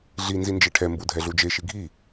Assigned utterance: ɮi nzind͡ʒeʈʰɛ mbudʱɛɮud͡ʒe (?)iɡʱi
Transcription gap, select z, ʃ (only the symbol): ʃ